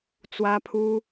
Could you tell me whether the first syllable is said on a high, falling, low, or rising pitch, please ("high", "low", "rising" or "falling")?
high